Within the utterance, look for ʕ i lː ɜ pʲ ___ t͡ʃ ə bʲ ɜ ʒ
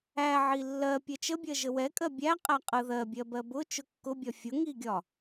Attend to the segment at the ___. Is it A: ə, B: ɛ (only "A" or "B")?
B